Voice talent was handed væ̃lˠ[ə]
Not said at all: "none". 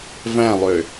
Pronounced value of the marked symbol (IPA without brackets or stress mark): ø